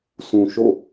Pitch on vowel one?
low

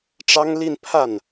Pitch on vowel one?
high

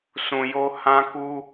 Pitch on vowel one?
low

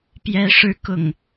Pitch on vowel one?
rising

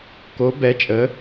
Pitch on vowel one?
rising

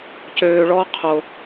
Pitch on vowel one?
low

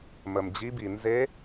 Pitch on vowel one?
low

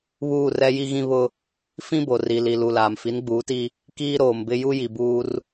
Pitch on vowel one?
falling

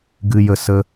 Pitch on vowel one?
low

